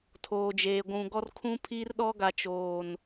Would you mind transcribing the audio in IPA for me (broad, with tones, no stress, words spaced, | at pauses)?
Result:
tʰoː˨d͡ʒeː˨ ɡʷũ˨ɡɔ˦r kʰũ˦pʰiː˦rɗɔ˦ ɡa˨t͡ʃoː˨n